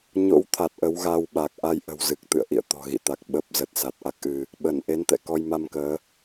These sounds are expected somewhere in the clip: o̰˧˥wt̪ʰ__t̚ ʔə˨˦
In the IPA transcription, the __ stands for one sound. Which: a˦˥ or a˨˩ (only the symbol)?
a˨˩